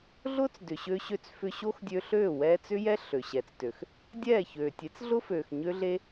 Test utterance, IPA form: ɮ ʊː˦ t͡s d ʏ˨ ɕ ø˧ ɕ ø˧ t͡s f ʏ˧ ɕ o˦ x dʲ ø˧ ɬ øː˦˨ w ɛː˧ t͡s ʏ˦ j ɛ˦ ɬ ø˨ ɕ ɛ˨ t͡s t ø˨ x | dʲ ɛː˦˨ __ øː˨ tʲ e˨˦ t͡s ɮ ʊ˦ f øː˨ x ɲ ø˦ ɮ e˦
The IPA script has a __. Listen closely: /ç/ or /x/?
ç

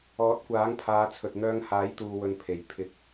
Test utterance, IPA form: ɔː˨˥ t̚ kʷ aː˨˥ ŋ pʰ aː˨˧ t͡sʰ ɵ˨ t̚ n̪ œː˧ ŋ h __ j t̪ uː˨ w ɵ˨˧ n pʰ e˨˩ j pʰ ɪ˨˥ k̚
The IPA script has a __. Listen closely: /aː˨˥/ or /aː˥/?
aː˨˥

